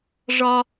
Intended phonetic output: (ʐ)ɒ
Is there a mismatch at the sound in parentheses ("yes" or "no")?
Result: no